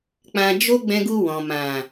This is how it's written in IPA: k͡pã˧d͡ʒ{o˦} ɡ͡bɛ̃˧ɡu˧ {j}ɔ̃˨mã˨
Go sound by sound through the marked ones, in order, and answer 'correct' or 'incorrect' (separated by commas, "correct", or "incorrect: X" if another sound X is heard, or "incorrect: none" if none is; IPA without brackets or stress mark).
correct, incorrect: w